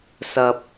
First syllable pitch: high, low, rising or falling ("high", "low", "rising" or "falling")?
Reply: low